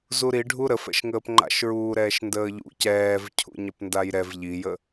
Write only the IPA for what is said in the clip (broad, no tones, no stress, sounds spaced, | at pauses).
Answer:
z u ɾ i ɖʱ u ɾ ə f ɛ̰ ʃ ŋ əː p ŋ͡ǃ a̰ ʃ ɹ uː ɾ ɛː ʃ n d əː ʎ ṵ c ɛː v cʰ ṵ ɲ ɐ p n d a j ɾ ɛ v ʎ i j ə